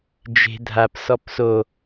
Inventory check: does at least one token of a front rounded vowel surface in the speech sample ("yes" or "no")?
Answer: no